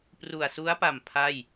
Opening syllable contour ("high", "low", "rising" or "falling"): low